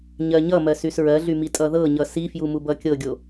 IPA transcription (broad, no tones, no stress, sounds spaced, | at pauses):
ɲ ɜ ɲ ʌ m ɜ s y s ɹ ɜ ɮ y m i tʼ ʌ ð ɤ ɲ ʌ s i f j u m u b ʌ kʲ ɤ ɡʲ o